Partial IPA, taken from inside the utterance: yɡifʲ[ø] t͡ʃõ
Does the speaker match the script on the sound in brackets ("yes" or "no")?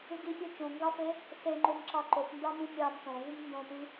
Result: yes